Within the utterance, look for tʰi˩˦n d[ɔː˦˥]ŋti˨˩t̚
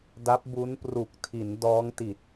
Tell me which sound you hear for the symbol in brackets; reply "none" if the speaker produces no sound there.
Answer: ɔː˦˥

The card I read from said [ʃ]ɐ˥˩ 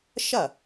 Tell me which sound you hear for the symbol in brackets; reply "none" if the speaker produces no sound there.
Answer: ʃ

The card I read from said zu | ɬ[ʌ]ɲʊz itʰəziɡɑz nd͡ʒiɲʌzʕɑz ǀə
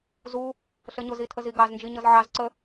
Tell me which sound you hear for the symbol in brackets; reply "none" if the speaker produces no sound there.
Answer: ə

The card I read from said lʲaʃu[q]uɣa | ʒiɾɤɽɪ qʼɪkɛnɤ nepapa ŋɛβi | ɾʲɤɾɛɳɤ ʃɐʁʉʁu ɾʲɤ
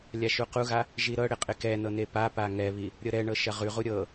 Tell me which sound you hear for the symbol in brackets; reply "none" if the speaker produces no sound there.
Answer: q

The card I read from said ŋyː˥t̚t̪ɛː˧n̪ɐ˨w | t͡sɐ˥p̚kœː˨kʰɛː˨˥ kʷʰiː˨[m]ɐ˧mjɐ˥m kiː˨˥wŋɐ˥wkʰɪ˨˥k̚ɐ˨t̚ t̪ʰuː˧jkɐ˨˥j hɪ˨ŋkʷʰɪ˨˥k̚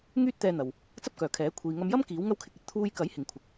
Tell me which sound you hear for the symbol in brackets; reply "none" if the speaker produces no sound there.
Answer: ŋ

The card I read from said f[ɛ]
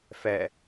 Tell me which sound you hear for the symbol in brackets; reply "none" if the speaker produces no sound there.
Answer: ɛ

